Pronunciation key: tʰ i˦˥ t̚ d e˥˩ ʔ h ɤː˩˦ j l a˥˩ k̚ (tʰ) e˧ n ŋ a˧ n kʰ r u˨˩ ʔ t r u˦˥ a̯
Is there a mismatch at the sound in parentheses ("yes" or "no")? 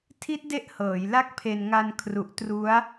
yes